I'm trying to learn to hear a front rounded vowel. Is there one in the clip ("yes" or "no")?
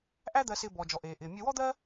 no